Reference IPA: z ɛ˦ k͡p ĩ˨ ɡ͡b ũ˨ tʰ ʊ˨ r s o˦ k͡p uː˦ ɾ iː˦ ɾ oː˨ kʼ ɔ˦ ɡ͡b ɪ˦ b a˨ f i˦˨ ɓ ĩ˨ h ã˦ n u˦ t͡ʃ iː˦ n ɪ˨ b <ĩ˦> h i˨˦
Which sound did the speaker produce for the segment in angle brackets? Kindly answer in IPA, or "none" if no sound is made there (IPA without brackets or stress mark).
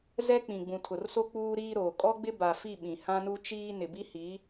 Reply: i˦